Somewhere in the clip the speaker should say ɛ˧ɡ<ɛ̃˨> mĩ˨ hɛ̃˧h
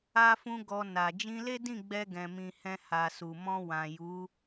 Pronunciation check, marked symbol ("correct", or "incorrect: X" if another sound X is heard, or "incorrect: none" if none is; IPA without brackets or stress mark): correct